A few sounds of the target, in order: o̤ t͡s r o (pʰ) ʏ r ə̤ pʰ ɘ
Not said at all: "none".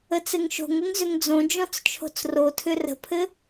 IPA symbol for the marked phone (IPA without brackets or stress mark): tʰ